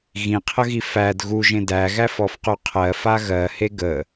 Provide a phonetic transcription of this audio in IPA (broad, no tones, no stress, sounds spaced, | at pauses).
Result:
ɣ ĩ qʰ ə ɣ i f æ d ɣ u ʒ ẽ d æ ɣ æ f ɔ f q u qʰ ɜ f a ɣ ɜ h e ɡ ə